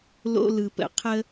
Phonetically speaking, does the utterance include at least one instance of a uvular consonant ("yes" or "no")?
yes